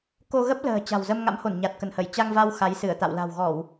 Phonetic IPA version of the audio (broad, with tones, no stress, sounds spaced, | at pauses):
k o˧ ɣ ə˦˥ p̚ l ə̤ː˨˩ t͡ɕ a̤˨˩ w z ə˧ m ŋ a̰˧˥ m h o˧˩ n ɲ a˨˩ t̚ k ə˧˩ n h ə˧˩ j t͡ɕ a˧ ŋ v a˧ w x a˨˦ j s ɨ˧˩ ə̯ t̪ a̰˧˨ w l a̤˨˩ w ɣ ɔ˧˩˨ w